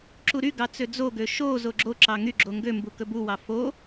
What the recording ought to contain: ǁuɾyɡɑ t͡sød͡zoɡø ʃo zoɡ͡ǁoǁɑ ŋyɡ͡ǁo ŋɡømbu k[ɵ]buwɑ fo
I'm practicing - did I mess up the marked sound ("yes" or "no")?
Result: no